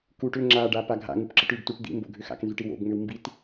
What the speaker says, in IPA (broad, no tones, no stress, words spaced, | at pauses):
kuʈ ʏ ŋ͡ǁaɖa paɡʱa̰ŋup ǁəʈʉbtuʈ d̪ḭmbo̰ ɡʱʏxa̰knzʉʈ iwo̰bŋ͡mʏw mbit